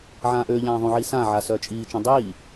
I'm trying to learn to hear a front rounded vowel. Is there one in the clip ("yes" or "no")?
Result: yes